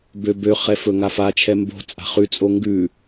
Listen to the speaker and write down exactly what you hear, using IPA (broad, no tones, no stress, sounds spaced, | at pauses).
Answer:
b ø b ø χ ɛ f ɵ ŋ a f a t͡ʃʰ ɛ m b o̤ t͡sʼ a̤ χ ʉ t͡sʼ o ŋ ɡ ʉ